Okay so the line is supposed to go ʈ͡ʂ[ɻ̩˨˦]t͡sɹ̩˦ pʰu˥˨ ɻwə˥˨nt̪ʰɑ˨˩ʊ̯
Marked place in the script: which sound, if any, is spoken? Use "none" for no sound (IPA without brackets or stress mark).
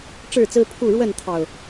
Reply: ɻ̩˥˨